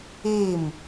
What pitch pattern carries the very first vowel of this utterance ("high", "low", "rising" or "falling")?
falling